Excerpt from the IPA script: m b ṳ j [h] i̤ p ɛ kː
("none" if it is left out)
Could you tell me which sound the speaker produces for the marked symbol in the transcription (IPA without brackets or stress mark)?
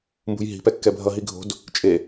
ɦ